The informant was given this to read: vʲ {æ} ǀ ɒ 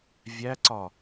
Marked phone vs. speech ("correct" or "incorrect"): correct